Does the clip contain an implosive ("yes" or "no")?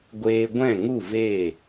no